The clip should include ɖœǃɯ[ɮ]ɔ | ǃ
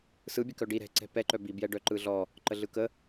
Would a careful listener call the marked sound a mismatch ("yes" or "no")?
no